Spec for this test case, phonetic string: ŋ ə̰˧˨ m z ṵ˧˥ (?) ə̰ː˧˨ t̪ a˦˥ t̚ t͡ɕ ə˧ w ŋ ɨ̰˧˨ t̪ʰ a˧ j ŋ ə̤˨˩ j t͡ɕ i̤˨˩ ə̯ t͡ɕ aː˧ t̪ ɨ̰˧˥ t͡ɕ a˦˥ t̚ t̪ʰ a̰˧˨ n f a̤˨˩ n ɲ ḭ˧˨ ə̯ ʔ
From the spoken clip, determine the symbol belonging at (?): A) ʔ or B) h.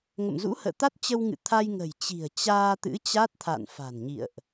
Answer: B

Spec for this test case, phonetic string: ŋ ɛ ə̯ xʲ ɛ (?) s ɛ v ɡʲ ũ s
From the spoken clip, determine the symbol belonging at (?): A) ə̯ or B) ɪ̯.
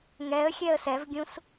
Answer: A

